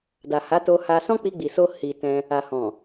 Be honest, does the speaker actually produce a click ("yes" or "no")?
no